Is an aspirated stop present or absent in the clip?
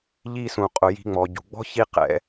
absent